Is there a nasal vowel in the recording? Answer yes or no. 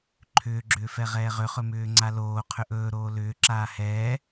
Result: no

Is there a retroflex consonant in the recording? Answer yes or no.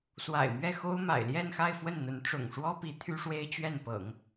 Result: yes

